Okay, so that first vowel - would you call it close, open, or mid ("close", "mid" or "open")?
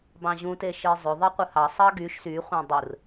open